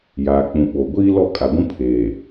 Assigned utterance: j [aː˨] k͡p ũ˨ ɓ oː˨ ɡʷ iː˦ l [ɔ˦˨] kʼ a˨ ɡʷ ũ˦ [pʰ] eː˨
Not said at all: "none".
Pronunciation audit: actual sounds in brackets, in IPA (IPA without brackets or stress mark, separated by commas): aː˨, ɔ˦˨, pʰ